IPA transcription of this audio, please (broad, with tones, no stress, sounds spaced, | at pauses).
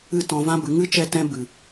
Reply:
ɨ˦˨ t ɔ̃˧ v ã˦ b ɨ˨˦ ŋ ɨ˦ t͡ʃ ɛ˧ t ɛ̃˧ b ɨ˨